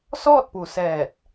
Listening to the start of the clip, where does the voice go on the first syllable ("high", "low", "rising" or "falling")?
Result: falling